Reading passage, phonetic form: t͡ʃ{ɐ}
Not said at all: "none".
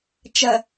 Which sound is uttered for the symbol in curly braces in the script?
ɐ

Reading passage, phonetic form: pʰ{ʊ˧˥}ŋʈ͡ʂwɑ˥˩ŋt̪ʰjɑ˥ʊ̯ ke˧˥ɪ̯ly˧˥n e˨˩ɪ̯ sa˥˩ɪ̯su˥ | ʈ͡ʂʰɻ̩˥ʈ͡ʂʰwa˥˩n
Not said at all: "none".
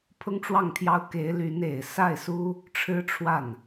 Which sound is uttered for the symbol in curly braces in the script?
ʊ˥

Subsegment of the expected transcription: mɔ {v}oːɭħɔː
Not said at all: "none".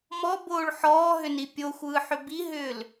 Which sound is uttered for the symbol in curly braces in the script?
b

